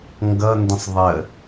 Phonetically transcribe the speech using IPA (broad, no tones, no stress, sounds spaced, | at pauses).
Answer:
ŋ ɡ ʌ n d ə̃ sˤ ðˤ ə